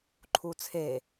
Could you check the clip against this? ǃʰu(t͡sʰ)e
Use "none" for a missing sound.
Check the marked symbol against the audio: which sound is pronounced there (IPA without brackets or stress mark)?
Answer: t͡sʰ